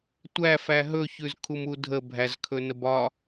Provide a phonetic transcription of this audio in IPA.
tʷ æ f æ ɦ ɵ ç ʉ z kʰ u m u dʱ ə bʱ æ z kʰ ɵ n ə b ɒ

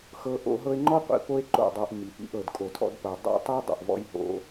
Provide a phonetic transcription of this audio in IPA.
x ɤ˧ ʔ o̰˧ ɦ ɤ˧ e̯ ŋ͡ǃ ɔ˦ qʷ ḭ˧ p o˦ e̯ ǃ o̰˦˨ dˤ ɤ˧ ʔ m i˨ p ḭ˧ ʔ ɤ˨ d kʼ o˨ tʰ ɔ̰˧ d p ɤ˨ dˤ o̰˦ tˤ i˦ dˤ o̰˨ ʔ v ɔ̰˦ j ɦ o̰˦

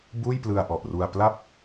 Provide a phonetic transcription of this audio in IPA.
b uː˥˩ j p l ɯ˧ a̯ ʔ ɔ˨˩ ʔ r u˧ a̯ p l a˦˥ p̚

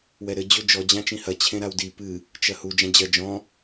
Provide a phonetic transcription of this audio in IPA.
w ɛ ɾ ɘ d͡ʑ o d͡ʒ ɔ d͡ʑ ã t͡ʃ ĩ h ɐ t͡ɕʰ ẽ ɾ a w d i p ɨ | t͡ʃ ɐ h u d͡ʒ ã d͡ʑ ɐ d͡ʒ ɔ̃

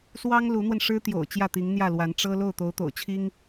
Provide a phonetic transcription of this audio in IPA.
s w ɑ˥ ŋ l u˧˥ n̪ w ə˧ n ʂ ɻ̩˥ t̪ j o̰˨˩ ʊ̯ t͡ɕ j ä˥˩ t̪ i˧˥ ŋ n̪ j ä˥˩ l w a˧˥ n ʈ͡ʂ ɤ˥ l o˥˩ ʊ̯ t̪ o˧˥ ʊ̯ t̪ o̰˨˩ ʊ̯ t͡ɕʰ i˥ ŋ

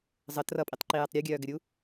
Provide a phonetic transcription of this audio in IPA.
zˤ ə t r ʌ pʼ i tˤ ǃ i j ɛ tˤ ɾʲ o ɡʲ œː ɡ ɘ ɾʲ u

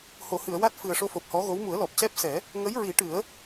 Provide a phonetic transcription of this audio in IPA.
h o˨˩˨ h ɨ˨˩˨ ə̯ w a˦˥ t̚ f ɨ˨˩ ə̯ ʂ o˧ f o˨˩ p̚ h ɔ˧˥ ɣ o˧˥ w m u˨˩˦ ə̯ l ɔ˨˩ p̚ c ɛ˦˥ p̚ s ɛ˨˩˦ | ŋ ə˧˥ j ɹ i˨˩˦ ʈ ɨ˨˩˦ ə̯

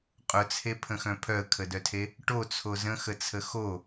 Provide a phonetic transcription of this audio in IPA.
qʼ ʊ t͡sʰ e pʰ ə̃ x œ̃ pʰ œ ə̯ kʰ ə d œ tʰ e | ʈ o t͡sʰ o z ə̃ x ə t͡sʰ ə x o

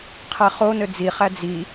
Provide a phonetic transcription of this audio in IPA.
qʰ ɛ χ o n ɘ d͡z i χ æ d͡z i

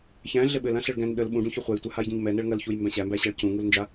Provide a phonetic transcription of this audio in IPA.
ç æ̃ ɮ ɘ ɓ ɘ l ã ɬ ɘ ɭ ɡ æ̃ n ɗ ə l ɓ ũ ɖ ũ ç œ χʷ æ j tʷ œ h a j ɟ ã ɲ m ɛ n ɛ ɭ ŋ ɐ l ç u j m b æ̃ ɕ æ m b æ ɕ a ɭ c ũ ŋ u l n d͡ʒ a

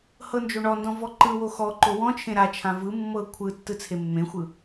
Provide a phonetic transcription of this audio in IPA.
h ɤ n d͡ʒ o ɳ ɔ n d ɔ̃ v ɔ ǃ ɯ w o x ɔ ǃ o w ɔ̃ t͡ʃʰ ẽ ɾ a t͡ʃʰ ã v ɯ mː ɤ kʷʰ ɯ tː ɯ t͡sʰ e mː ẽ xʷ ɯ

